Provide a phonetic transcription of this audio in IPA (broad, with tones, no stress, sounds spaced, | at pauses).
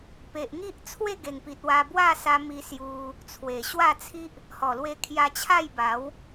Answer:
p e˨ ʔ ŋ i˦ ʔ t͡sʰ w e˥˧ ɡ e˨˩ ŋ p i˨ t̚ w a˧ b w a˥˧ s a˧ m i˧ s j u˧ | t͡sʰ w e˨˩ ɕ w a˥˧ t͡sʰ i˦ ʔ | h ɔ˨˩ l w e˧ kʰ j a˧ t͡ɕʰ a˥˧ j b a˨˦ w